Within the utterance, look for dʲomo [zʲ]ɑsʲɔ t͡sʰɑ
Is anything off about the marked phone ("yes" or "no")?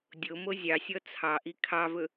no